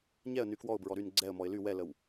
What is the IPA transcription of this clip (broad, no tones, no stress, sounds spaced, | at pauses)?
ɲ ɛ ə̯ n y k w ɔ ʊ̯ b ɹ ɔ ɾ y n ɡ͡ǀ ɛ ə̯ m ɔ ɪ̯ l y w ɛ l ə w